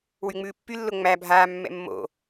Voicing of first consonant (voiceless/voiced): voiced